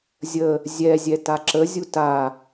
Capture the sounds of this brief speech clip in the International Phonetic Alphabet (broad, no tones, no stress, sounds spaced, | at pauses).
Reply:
zʲ ə | zʲ ɛ zʲ ɛ t a ǁ ə zʲ u t a